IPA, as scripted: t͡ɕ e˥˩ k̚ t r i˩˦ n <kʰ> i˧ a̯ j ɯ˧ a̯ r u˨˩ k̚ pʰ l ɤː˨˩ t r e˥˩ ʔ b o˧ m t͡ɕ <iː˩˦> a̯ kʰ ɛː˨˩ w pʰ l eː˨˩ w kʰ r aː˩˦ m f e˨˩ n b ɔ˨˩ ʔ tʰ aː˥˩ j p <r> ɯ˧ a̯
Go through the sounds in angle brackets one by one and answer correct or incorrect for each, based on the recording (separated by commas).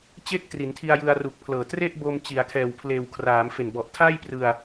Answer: incorrect, incorrect, correct